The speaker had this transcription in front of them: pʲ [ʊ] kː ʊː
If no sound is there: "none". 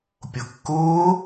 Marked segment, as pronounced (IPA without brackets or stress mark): ʊ